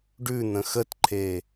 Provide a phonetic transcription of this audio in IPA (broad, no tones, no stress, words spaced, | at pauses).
ɖʉn̪ə̃ xətǃʰe